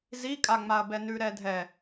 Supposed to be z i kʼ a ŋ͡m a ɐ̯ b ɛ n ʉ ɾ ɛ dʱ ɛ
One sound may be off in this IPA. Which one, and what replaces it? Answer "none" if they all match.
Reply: none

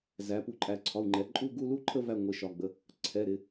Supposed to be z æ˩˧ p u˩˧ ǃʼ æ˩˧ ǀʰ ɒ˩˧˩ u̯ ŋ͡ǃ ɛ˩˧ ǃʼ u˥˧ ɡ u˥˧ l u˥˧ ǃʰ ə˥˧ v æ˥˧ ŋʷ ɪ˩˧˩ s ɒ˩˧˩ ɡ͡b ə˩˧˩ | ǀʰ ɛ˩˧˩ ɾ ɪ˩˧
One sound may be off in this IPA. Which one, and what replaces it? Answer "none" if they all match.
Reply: s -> ʃ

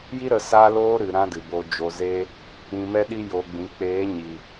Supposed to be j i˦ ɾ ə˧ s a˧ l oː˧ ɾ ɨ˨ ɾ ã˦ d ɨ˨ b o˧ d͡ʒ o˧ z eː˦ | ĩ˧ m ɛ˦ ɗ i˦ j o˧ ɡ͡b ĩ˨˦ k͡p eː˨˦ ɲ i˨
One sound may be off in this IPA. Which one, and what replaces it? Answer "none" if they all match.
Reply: none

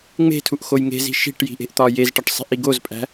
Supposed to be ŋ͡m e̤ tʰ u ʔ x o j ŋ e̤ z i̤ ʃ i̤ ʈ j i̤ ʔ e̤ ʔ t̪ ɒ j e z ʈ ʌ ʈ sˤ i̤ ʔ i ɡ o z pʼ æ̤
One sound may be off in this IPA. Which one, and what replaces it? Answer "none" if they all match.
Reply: ʌ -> ɒ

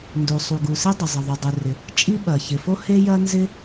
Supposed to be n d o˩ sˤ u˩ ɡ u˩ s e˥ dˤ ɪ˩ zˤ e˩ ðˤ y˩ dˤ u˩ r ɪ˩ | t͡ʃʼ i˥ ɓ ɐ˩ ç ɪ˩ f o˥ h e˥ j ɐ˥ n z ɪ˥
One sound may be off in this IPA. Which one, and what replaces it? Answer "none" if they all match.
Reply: none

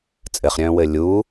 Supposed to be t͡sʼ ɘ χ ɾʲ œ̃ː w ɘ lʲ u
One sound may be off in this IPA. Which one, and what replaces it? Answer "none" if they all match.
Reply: u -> uː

